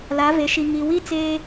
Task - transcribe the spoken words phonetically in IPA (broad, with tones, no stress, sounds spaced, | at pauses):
l a˨˦ v e˨ ʃ i˨ ŋ i˨ w i˦ t͡s eː˦